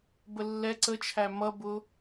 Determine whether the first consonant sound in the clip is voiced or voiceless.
voiced